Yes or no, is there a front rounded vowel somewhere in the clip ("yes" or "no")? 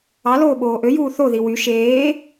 yes